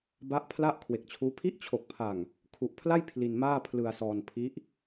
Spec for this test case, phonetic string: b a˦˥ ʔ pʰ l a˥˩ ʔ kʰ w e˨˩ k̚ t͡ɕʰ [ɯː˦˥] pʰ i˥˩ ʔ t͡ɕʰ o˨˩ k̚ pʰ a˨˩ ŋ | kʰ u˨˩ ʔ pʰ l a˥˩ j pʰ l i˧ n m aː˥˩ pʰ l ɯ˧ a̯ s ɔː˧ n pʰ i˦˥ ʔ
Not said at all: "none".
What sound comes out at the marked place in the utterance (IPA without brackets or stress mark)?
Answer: uː˦˥